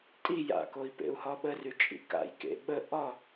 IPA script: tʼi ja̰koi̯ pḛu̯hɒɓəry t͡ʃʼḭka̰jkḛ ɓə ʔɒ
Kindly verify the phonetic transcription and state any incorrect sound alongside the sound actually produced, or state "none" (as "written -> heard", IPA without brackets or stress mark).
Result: none